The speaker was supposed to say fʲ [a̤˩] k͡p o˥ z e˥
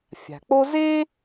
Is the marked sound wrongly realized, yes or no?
no